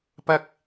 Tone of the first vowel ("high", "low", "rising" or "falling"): high